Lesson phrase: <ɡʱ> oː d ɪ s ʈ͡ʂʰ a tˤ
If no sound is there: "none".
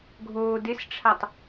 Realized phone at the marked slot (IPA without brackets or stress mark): ɡʱ